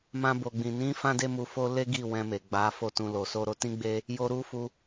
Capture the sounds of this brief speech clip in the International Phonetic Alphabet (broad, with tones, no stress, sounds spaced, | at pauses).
m ã˧ b o˨ ɡ͡b ĩ˨ n ĩ˨˦ f ã˧ d e˧ m u˧ f o˦ l e˦ ɡ i˦˨ w ɛ̃˧ m e˨ ɡ͡b a˨˦ f o˦˨ t ũ˧ l o˨ s o˧ ɾ o˧ t ĩ˦ ɡ͡b e˦ | j o˧ ɾ u˦ f u˧